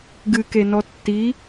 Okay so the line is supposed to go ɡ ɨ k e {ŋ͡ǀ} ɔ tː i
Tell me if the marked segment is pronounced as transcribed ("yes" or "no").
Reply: no